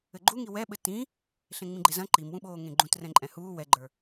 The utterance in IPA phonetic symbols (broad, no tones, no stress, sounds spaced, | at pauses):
ɘ ɡ͡ǃ u ŋ i w ɛ ɓ ɘ t ĩ | ɬ ẽ ŋ͡m ĩ ɡ͡ǃ e z ɐ̃ ǃ i m w ũ ɓ oː ŋ ẽ ɡ͡ǃ ũ t r ɛ̃ ǃʼ ɛ̃ h uː w ɛ ɡ͡ǃ ə˞